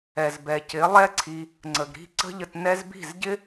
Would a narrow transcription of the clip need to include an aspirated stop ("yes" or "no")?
yes